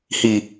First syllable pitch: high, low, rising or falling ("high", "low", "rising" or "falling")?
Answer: low